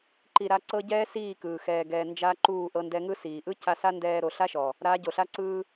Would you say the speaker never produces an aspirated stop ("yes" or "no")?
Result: yes